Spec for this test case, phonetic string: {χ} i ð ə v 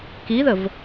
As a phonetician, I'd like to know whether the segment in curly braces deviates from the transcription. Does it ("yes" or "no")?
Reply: yes